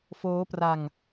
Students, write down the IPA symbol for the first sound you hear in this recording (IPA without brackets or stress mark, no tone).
f